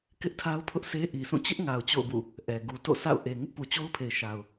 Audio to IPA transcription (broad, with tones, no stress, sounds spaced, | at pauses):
k ɪ˦ ʔ tʰ a˦ ʊ̯ pʰ ʊ˦ ʔ sʰ e˦ ʔ i˨ s ũ˦˨ t͡ɕ ɪ˦ ʔ ŋ a˨ ʊ̯ t͡ɕ o̰˦˨ ʊ̯ b ṵ˦˨ | ʔ ɛ˨ ɡ u˨ t o̰˦˨ sʰ a̰˦˨ ʊ̯ ʔ e˨ ŋ ɪ˦ ʔ p u˨ t͡ɕ o˦ ʊ̯ pʰ e˨ ɪ̯ ʃ a˨ ʊ̯